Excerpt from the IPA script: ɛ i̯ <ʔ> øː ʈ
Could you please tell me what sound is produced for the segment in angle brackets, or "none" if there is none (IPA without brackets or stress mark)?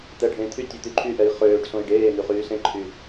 χ